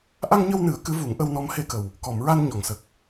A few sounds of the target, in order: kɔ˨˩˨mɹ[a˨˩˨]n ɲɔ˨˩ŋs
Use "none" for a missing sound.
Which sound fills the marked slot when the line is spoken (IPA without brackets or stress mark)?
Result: a˧